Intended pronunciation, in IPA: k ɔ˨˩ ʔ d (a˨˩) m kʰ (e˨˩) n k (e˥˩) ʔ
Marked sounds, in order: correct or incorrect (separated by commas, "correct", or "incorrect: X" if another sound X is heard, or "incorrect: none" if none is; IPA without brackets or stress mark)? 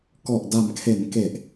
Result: correct, incorrect: e˩˦, incorrect: e˨˩